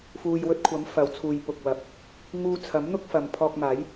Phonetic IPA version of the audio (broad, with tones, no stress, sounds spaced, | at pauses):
f uː˨ j w ɵ˧ t̚ kʷʰ ɐ˨˥ m f ɐ˨˥ w t͡sʰ uː˨ j p ʊ˨ k̚ w ɐ˨ p̚ | ŋ uː˧ t͡sʰ ɐ˨˥ m n̪ ʊ˥ k̚ f ɐ˨ m pʰ ɔː˧ k̚ m aː˨˥ j